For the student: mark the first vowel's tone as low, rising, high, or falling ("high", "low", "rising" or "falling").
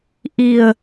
low